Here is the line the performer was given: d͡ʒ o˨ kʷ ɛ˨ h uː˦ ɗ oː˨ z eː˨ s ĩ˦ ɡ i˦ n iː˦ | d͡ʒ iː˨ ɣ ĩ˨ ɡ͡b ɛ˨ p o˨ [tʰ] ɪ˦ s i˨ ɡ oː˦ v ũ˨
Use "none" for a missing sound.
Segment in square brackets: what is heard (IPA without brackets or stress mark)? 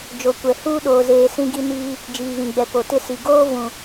t